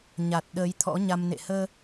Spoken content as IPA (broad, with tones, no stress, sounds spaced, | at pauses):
ɲ a˨˩ t̚ ɗ əː˨˦ j t̪ʰ ɔ̰˧˥ ɲ a˧ m n ḛ˧˨ h əː˧